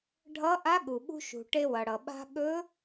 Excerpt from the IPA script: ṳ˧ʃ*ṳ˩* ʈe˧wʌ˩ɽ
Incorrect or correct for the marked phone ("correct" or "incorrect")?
correct